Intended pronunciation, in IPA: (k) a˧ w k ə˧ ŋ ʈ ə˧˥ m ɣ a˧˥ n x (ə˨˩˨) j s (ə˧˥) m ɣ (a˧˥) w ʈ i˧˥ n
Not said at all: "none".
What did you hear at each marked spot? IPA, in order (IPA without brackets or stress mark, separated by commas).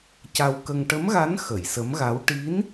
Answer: c, ə˨˩˨, ə˧˥, a˧˥